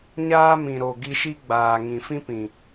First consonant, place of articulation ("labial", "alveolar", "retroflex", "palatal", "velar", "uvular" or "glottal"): palatal